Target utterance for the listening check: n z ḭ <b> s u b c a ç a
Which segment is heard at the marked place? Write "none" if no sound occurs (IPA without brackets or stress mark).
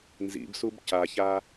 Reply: b